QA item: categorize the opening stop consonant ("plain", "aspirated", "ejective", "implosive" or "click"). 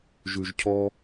aspirated